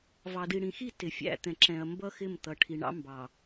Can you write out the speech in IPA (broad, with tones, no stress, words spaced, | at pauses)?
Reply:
vɑ˨di˨ɽĩ˨xi˦˨ tɪ˨fʲæ̰˨t̪ɛ̃˨ǁɛ̃˨ɐ̯ mbʌ˦xɪ˦˨mt̪ʌ˨ ʈʰi˨ɳɑ̰˦mbɑ˨